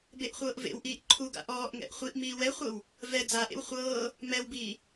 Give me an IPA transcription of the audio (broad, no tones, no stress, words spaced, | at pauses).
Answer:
beʔχʷɤːʔvḛwʔiːʔ ǃʰuɡa̰ ʔɔːʔŋɛ̰ʔ χʷiʔ miːwɛχʷɤw | vɛ d͡zaʔḛw χʷɤː | mɛwbiː